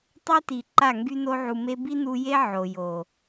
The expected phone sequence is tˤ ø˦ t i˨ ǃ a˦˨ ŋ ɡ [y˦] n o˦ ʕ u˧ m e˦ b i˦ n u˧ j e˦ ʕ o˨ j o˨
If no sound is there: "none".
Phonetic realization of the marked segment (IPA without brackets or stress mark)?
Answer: y˦